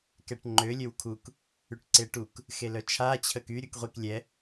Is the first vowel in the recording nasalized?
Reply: no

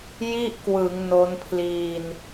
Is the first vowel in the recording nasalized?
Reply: no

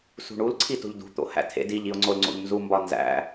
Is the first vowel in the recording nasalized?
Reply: no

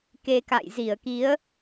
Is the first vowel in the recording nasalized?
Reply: no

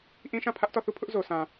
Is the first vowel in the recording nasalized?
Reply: yes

